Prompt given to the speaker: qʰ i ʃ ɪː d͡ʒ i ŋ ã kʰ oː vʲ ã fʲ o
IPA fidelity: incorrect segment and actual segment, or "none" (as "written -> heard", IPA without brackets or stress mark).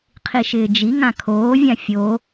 none